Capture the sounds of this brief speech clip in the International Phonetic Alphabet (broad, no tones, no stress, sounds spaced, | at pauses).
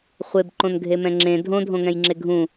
χʷ e b ǃ õ n ɡʱ e m ɛ̃ ŋ͡ǁ ẽ dʱ õ dʱ õ ŋ ɛ̃ j ŋ͡ǁ e ɡʱ ũ